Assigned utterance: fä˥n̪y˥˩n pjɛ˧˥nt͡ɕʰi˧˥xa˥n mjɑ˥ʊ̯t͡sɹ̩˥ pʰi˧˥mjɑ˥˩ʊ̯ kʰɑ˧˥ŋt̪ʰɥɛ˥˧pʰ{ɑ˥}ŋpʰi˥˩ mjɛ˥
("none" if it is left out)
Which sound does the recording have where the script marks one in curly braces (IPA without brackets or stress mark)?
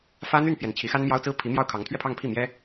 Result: ɑ˥˧